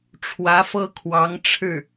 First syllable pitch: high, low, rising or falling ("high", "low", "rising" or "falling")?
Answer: rising